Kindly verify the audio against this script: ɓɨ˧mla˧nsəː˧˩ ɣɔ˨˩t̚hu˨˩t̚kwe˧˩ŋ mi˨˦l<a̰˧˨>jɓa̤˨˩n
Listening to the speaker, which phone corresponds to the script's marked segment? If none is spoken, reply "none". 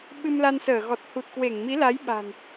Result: a˨˦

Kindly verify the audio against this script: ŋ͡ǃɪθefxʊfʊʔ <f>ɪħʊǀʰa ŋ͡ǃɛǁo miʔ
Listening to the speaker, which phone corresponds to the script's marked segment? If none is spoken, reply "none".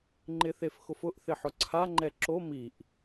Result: θ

